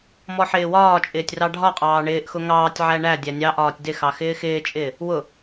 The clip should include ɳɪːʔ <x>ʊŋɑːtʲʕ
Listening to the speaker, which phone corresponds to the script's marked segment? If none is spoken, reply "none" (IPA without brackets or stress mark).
x